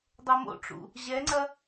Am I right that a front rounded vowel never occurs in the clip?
yes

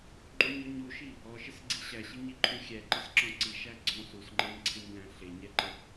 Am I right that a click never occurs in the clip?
no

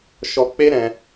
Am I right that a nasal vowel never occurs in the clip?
no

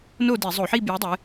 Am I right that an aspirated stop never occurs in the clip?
yes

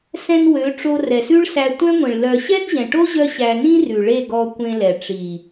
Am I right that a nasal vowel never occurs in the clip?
no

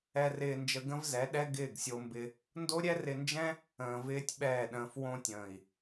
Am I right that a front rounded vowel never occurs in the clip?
yes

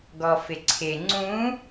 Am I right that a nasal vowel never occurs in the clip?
no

